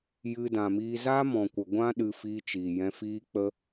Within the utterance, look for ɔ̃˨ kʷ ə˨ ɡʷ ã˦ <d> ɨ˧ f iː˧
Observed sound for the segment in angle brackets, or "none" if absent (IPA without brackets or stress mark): ɗ